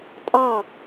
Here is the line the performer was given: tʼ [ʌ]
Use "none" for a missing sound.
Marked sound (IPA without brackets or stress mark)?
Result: ɑ